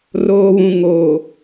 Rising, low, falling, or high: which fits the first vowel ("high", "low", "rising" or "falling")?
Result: low